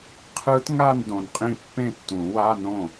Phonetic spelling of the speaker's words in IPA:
qʰɯ˦˥tŋa˥˧n dõ˨nqʼĩ˥˩ pːẽ˥˩tːũ˨˩˦wa˧˥˧nõ˥˩

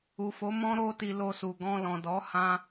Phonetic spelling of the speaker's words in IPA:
u˨fo˨˦mɔ̃˦ɾo˦ ti˧lo˧su˨ ɡɔ̃˧ lɔ̃˨dɔ˨˦ hã˦

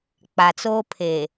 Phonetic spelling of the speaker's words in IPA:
k͡pa˨t͡soː˦ pʰe˨

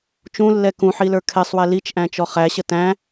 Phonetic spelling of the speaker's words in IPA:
t͡ʃũlːɛ kũħilə˞ kʰɛsˤwɛ lit͡ʃʔæ̃t͡ʃɔ χæɕə tæ̃

